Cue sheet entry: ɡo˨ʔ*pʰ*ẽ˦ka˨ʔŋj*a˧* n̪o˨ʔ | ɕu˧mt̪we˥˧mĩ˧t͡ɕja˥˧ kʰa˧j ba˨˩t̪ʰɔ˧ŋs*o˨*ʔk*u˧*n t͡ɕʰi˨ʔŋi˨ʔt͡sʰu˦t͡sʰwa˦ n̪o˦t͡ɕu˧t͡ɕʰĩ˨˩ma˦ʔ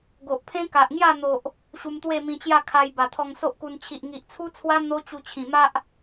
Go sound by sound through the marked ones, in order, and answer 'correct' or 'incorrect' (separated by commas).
correct, incorrect, incorrect, correct